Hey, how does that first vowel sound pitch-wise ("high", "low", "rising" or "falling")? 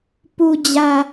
low